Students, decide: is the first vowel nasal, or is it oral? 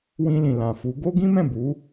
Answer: nasal